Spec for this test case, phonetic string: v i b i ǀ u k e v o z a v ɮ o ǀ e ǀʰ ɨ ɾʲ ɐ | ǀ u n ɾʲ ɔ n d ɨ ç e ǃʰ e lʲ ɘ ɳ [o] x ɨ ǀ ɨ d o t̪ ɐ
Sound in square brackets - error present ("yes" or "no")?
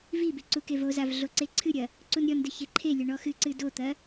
yes